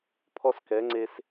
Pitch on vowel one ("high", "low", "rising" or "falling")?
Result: high